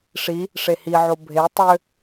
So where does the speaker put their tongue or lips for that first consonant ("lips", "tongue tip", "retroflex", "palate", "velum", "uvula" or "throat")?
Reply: retroflex